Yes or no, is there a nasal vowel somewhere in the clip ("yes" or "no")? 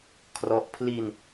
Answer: no